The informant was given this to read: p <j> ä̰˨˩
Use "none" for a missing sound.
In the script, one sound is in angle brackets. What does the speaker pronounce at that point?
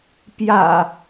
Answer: j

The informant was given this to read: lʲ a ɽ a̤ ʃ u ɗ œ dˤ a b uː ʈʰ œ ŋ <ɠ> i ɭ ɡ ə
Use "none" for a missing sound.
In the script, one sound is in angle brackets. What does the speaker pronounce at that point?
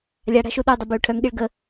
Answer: ɠ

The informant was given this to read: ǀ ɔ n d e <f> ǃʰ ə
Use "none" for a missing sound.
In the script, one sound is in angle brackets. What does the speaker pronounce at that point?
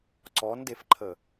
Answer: f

